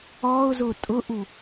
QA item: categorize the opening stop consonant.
ejective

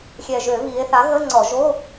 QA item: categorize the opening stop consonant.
click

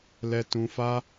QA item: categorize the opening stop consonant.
plain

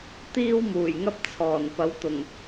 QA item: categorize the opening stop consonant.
plain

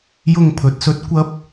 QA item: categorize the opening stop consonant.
aspirated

